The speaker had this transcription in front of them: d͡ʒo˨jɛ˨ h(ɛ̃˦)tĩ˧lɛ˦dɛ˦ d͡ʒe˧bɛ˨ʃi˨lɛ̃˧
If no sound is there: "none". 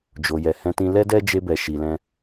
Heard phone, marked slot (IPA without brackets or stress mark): ɛ̃˧